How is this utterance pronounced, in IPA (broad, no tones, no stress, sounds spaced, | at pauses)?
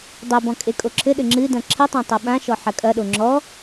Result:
dˤ ɛ b ɔ̃ kʼ e kʼ o ǁʰ ɘ ɗ ɘ ŋ͡ǁ ɨ d ɐ̃ ǁʰ ɨ tˤ õ tˤ u ɓ ã ʃ ɔ ħ ɐ kʼ ɐ ɗ o ŋ͡ǁ ɔ